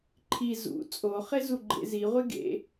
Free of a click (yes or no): no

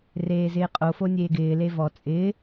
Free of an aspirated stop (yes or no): yes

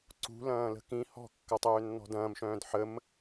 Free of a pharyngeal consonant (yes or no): no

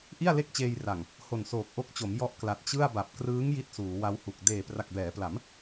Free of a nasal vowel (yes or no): yes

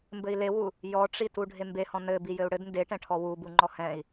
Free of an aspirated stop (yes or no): no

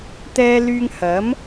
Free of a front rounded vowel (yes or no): no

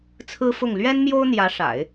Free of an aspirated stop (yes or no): no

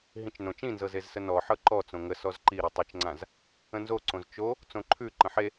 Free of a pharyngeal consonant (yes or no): no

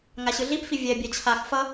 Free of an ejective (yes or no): yes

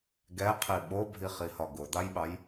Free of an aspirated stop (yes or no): no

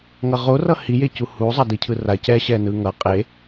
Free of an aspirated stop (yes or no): no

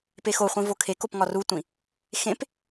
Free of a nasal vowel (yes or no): no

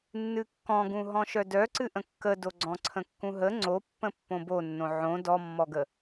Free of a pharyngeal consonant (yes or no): no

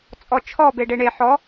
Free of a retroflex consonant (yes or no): no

